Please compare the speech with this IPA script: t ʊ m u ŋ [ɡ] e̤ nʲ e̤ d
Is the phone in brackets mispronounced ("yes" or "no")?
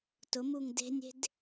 yes